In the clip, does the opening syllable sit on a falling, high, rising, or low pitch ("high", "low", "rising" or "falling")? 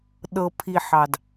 low